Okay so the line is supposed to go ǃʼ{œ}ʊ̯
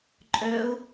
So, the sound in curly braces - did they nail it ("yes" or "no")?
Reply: yes